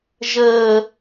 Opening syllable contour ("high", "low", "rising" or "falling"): low